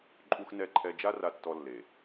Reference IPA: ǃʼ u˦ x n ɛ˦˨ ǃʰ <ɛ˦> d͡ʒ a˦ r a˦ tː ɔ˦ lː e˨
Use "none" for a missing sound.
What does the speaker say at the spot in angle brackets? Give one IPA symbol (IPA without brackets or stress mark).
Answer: ɛ˦